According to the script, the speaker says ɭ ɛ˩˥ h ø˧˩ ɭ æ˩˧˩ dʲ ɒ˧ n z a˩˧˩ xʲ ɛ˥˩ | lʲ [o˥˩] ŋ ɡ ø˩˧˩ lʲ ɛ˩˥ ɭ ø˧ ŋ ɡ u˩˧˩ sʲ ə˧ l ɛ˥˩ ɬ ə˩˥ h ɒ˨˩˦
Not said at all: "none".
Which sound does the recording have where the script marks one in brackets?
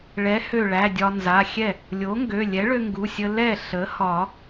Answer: o˩˥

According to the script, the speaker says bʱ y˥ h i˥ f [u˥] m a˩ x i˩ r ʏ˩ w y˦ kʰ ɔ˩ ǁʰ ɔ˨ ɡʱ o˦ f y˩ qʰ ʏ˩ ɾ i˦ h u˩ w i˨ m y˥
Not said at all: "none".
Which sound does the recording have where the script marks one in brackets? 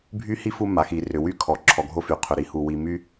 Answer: u˦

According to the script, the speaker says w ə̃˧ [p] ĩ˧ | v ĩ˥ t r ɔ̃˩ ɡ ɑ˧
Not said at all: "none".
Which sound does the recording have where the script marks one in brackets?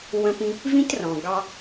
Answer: p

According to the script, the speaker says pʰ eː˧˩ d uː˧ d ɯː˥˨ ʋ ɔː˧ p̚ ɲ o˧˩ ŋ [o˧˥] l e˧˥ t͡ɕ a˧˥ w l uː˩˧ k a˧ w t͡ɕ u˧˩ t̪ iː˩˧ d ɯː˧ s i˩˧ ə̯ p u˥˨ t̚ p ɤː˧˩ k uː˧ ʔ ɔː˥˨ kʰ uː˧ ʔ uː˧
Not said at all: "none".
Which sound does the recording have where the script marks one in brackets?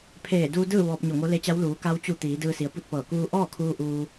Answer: o˧˥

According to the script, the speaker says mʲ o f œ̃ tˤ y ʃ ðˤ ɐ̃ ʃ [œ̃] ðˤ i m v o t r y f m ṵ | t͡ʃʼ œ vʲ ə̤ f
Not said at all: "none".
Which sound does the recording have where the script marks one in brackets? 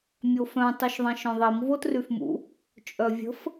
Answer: œ̃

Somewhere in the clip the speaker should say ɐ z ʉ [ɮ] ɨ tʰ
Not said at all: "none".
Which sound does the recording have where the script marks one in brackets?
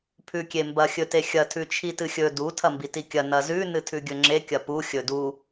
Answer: n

